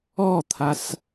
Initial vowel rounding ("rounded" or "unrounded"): rounded